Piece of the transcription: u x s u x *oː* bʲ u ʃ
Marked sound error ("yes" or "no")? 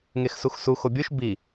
yes